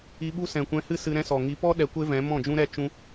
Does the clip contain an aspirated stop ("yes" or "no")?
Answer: no